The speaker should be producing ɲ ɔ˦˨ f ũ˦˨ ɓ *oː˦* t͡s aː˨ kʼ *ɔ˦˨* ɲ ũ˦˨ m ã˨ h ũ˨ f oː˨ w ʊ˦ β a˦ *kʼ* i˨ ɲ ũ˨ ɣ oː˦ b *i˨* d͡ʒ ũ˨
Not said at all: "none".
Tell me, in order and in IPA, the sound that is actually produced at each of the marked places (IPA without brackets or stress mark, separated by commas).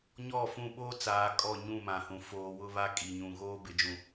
oː˦, ɔ˦˨, kʼ, ɪ˨